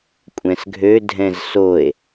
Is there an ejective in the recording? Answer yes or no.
yes